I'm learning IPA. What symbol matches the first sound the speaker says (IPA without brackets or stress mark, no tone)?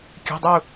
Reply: kʲ